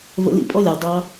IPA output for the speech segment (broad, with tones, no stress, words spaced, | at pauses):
və̰˧lḭ˦˨pʼɔ˦lʲʌ˨w dˤɑ˦